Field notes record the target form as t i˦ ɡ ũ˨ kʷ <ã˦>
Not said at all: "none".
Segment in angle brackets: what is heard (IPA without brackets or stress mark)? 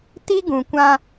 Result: ã˦